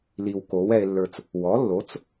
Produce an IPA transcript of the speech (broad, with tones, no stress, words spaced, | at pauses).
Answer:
li˨wko˩˥w ɛ˨e̯lːə˞˨t͡s | wɔ˩˥lːo˩˥t͡s